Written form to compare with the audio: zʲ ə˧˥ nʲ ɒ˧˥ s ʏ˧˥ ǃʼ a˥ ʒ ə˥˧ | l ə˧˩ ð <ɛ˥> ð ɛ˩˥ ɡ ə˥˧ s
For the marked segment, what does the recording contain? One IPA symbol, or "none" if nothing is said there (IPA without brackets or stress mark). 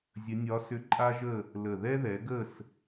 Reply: ɛ˥